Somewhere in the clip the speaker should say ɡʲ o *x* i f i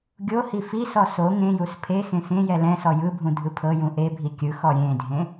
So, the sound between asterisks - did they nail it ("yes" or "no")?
no